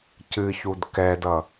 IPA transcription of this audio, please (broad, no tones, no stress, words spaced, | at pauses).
cɨçud kɛdʌ